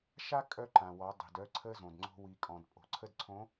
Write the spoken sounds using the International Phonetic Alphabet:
ʃ a˦ kʼ œ˦ ǃ ã˨ w ɔ˨˦ dˤ i̤˨ d œ˦ ǀʰ ə˦ z õ˨ d ŋ͡ǀ o̤˦ w i˨ kʼ ɔ̃˨ d pʼ o̤˨ ǀʰ ə˦ d ǀʰ õ˨˦

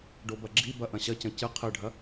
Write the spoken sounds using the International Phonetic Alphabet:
ɖ o b ɐ ɡ͡ǁ i b ɐ ʔ ɐ̃ ɕ ɐ c ɐ̃ c ɨ qʰ ɨ ɖʱ ɐ

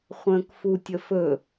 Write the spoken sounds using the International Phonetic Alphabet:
χʷ ə̃ː k f u tʲ ə f ɵ

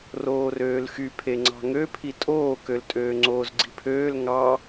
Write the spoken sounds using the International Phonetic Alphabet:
r oː r øː l x y pʰ e ŋ͡ǀ ɑ̤ ŋ ø pʰ i tʼ oː k ø l tʼ øː ŋ͡ǀ oː z ɡ͡ǀ i̤ pʰ øː l ŋ ɑ

